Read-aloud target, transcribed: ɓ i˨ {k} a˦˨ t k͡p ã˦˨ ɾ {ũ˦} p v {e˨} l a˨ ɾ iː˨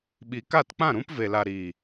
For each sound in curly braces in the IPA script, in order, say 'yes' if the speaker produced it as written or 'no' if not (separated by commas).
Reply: yes, yes, yes